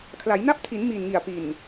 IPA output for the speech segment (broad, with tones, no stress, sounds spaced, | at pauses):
kʰ l a˩˦ j n a˦˥ p̚ tʰ i˩˦ n m i˨˩ n ŋ i˨˩ a̯ p i˨˩ n